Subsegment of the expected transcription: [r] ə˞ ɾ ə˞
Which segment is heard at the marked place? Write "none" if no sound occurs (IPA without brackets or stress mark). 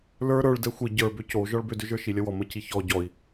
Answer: l